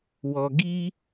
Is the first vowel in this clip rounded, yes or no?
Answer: yes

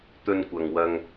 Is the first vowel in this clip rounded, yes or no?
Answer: yes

